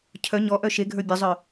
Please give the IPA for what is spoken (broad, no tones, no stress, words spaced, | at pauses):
cʰœ ɲɔʔœ ʃeɡʱə˞ bʲəzˤœ